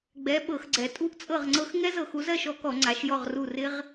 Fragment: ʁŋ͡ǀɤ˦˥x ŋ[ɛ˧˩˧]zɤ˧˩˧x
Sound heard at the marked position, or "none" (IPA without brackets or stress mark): ɛ˦˥